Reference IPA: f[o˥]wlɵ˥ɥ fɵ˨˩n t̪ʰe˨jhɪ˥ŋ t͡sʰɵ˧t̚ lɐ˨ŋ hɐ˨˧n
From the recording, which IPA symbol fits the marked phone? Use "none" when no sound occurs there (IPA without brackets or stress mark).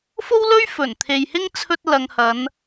o˥